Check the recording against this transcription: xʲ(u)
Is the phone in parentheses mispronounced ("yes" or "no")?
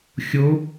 yes